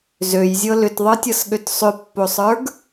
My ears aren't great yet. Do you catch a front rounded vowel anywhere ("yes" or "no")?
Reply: yes